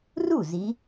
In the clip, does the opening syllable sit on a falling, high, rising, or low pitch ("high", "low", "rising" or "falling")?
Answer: falling